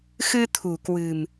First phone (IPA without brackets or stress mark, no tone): x